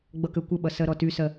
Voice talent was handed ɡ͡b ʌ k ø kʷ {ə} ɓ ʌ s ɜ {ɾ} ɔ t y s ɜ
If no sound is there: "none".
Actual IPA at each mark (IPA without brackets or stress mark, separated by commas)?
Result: ə, ɾ